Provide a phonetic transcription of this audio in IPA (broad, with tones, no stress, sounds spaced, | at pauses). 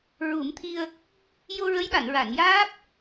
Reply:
ɹ u˨˩˦ m t̪ʰ i˧ ə̯ | j o˧ ɹ ə˧˥ j ɓ a˨˩˨ n ɹ a˨˩˨ n j aː˦˥ p̚